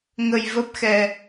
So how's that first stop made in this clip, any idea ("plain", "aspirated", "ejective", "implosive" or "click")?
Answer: plain